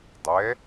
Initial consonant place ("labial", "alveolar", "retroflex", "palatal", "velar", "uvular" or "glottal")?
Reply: alveolar